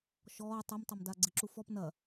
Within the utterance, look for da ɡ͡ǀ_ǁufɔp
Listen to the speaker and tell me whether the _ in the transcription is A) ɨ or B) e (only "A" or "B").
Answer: A